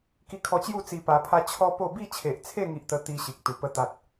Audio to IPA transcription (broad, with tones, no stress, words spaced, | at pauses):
ki˧kʰɔ˧t͡ɕju˥˧ t͡si˧pa˧pʰa˦ t͡ɕʰɔ˦po˥˧ bi˥˧t͡ɕʰe˨ʔt͡sʰe˥˧ ŋi˦ʔt̪ə˦ t̪i˦ ɕi˨k̚ t̪u˨˩pə˥˧ t̪a˦t̚